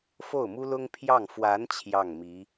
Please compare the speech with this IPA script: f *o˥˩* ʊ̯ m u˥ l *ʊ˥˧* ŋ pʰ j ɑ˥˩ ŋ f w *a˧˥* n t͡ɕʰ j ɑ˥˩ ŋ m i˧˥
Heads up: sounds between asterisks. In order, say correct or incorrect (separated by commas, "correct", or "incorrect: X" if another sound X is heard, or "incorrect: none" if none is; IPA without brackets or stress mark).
correct, incorrect: ʊ˥, correct